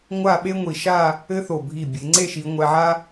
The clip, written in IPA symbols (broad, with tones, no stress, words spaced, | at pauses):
ŋʷa˥˧ɓe˥ŋʷi˧˩ ʃa˥˧ | ɘ˥θo˧˩ bʱi˧˩ bʲe˩˧ŋ͡ǀe˥˧ʃi˩˧ ŋʷɛ˧ʕa˥